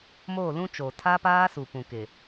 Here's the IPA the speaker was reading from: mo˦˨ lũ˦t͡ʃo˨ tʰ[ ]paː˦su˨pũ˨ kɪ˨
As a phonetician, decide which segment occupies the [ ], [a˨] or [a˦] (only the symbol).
a˦